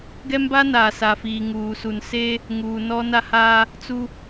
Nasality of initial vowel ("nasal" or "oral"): oral